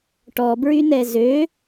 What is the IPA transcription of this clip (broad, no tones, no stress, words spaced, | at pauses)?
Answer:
ʈɔbɹynɛ zø